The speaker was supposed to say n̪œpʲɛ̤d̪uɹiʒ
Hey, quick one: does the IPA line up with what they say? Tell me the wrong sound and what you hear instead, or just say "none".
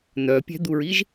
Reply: none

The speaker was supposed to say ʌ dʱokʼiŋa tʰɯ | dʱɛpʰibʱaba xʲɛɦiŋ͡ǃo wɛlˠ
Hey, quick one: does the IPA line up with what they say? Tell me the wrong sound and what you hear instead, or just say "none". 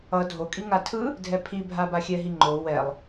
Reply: none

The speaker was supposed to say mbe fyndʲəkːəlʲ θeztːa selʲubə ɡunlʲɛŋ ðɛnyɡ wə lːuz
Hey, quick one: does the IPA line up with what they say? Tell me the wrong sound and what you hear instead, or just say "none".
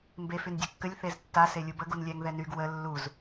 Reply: none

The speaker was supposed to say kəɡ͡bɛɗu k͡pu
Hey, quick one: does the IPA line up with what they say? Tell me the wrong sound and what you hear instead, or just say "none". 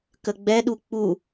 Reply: none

